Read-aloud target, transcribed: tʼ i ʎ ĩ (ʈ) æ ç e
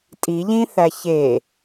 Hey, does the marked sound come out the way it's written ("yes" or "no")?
no